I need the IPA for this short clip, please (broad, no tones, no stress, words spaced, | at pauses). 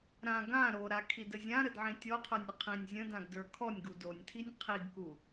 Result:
ɾã ɡã ɾoɾakʰidə zʲãɾədʕĩ tʲɔqʰə˞nʲə qʰĩnʲ zʲə̃dãɡdə˞ kʰɔnʲɡu donʲtʰinʲ qʰiɡku